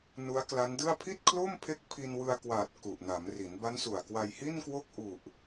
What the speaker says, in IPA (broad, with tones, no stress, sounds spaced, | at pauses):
n u˦˥ a̯ k l a˦˥ n d ɯ˥˩ a̯ pʰ i˥˩ t̚ kʰ l o˥˩ m pʰ e˦˥ k̚ pʰ i˧ n w ɯ˧ a̯ k w aː˨˩ t̚ k u˨˩ ʔ n a˩˦ m r i˩˦ n b a˦˥ n s u˨˩ a̯ k w a˧ j h i˥˩ n k w o˥˩ k̚ ʔ u˨˩ ʔ